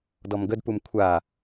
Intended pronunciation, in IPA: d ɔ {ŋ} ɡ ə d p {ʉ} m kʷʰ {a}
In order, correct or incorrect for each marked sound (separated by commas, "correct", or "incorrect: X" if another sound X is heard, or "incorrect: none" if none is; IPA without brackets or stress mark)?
incorrect: m, incorrect: u, correct